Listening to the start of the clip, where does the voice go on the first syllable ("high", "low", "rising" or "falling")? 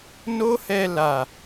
high